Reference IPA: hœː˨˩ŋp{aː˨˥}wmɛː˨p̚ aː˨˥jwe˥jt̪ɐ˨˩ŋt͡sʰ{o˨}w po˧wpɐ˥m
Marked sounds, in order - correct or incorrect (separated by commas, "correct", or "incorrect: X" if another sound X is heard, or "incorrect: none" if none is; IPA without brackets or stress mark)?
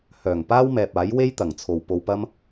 incorrect: aː˥, correct